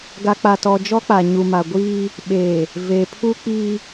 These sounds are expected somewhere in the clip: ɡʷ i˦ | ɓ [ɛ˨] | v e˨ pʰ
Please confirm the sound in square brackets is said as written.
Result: no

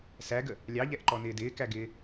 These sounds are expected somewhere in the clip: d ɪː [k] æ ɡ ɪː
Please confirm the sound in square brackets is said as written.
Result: yes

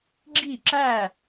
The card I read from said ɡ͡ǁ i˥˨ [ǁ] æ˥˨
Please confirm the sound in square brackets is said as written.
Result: yes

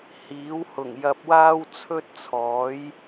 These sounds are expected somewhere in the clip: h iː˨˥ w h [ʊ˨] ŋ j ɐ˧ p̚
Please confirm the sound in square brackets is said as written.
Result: no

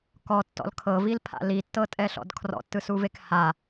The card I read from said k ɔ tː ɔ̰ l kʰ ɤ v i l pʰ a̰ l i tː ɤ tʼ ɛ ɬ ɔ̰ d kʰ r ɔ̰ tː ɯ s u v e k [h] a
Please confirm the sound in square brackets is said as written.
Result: yes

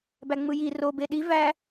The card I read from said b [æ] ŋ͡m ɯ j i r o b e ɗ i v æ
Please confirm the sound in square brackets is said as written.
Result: yes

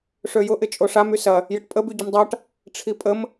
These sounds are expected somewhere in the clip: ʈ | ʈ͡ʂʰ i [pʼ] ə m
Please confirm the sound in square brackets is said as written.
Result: yes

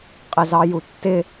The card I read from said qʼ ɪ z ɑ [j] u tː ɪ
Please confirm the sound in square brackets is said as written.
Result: yes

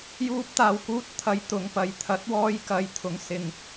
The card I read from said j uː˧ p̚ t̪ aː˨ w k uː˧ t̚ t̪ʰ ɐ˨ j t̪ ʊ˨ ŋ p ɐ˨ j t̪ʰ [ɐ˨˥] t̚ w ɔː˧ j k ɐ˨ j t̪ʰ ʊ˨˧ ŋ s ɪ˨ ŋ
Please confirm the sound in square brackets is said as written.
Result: yes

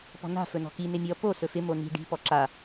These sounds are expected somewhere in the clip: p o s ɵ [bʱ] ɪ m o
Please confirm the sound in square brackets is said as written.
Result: no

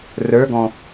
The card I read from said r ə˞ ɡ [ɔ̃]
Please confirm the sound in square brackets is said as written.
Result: yes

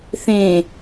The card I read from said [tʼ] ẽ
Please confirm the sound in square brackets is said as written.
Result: no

